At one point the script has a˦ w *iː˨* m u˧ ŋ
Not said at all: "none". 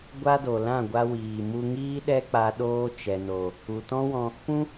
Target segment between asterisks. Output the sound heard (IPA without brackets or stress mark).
iː˨